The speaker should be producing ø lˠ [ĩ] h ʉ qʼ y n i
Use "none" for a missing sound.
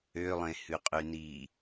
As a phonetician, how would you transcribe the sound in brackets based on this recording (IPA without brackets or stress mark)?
ẽ